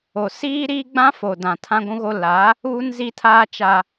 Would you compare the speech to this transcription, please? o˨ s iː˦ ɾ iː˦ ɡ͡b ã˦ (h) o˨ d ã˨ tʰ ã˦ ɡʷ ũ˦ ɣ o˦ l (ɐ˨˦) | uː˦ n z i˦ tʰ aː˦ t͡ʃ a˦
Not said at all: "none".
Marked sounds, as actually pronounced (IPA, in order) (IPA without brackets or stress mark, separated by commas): f, a˨˦